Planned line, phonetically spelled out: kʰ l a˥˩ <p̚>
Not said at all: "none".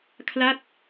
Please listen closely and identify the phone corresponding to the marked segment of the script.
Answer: t̚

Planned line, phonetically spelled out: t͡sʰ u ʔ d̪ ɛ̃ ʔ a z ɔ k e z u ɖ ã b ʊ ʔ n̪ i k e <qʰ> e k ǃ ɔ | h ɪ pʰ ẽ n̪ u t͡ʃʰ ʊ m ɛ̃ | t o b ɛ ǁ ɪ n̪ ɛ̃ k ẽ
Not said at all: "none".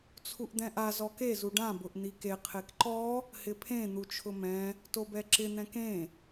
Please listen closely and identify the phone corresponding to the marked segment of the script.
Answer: qʰ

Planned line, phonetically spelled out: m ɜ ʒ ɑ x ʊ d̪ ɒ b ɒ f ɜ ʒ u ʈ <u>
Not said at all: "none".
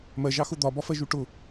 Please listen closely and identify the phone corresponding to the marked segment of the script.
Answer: ʊ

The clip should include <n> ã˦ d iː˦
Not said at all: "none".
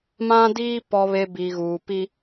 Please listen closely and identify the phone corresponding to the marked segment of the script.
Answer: m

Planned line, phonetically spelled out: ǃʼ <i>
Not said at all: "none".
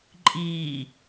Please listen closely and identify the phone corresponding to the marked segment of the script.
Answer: iː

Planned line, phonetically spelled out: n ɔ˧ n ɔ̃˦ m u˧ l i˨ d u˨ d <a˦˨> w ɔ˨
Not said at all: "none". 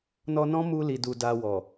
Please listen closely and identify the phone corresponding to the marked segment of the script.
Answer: a˧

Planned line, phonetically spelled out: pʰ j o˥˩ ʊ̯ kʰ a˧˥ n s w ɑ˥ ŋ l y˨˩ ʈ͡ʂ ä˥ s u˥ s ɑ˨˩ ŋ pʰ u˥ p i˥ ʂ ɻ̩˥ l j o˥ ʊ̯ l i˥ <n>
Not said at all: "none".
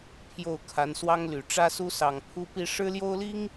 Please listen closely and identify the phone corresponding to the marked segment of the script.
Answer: ŋ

